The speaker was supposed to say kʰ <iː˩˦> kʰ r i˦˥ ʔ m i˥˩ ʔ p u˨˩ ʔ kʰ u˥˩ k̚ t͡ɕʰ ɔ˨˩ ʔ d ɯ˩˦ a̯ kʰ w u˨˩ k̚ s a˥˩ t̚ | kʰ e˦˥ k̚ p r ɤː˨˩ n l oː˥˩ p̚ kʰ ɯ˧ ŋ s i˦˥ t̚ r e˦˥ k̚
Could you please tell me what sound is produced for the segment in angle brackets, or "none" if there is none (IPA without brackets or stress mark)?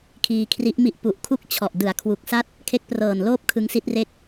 iː˧